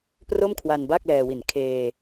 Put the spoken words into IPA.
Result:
pro˥˩mkʰwa˧nba˥˩k̚ lɛː˧wi˨˩n kʰeː˧

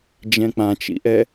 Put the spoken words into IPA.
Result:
d͡ʒɛ̃k͡pãt͡ʃḭʔɛ

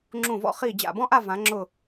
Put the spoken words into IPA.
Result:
ŋ͡ǁũ˧˩ vɔ̰˧χiː˧˩ d͡ʑa̰˧˩bɔ̃˥ʔa˥˧ vã˩˧ŋ͡ǁʊ˧˩

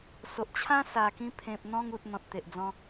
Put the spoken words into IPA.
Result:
so˨ʔt͡ɕʰã˦ sa˨˩kĩ˧ pʰẽ˨p̚n̪ɔ̃˧ŋu˨t̚ n̪ɔ̃˨t̚t̪e˨ʔd͡zɔ̃˧

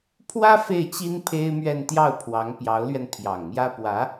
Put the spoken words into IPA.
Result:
pʰwä˥ fe˥˩ɪ̯ t͡ɕi˥n pʰe˥ɪ̯mɥɛ˥˧n t̪jɑ˥˩ʊ̯pʰwɑ˧˥ŋ pjɑ˧˥ʊ̯lɥɛ˧npʰjɑ˨˩ŋmjä˥ pwä˧˥

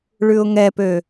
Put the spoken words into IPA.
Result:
ɭʉʊ̯ŋɛpø

